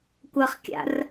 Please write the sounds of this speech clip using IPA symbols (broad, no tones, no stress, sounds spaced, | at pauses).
kʷ ɐ χ kʲ a̰ r